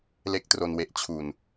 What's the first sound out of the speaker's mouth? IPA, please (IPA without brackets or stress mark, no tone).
l